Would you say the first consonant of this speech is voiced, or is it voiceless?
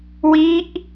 voiced